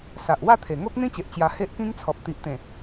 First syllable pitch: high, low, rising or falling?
low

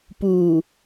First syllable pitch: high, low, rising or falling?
low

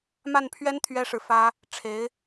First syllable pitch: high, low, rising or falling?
falling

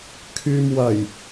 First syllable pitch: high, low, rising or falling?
low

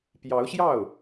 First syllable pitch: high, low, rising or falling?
rising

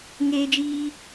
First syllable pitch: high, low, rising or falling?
high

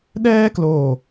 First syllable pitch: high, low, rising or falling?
high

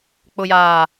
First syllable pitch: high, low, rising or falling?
low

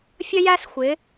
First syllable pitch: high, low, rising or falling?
high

